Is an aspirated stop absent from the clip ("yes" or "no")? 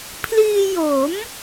no